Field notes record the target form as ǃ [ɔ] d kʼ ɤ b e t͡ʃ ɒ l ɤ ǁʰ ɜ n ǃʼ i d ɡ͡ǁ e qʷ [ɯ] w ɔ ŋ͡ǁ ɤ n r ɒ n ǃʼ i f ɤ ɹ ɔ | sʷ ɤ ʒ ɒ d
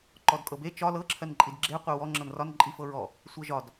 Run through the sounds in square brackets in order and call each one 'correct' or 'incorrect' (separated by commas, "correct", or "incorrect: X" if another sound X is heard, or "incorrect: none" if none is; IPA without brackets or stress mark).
correct, incorrect: ɤ